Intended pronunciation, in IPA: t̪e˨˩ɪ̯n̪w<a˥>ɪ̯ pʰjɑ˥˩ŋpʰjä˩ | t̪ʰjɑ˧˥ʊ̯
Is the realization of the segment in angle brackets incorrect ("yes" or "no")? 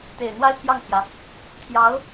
no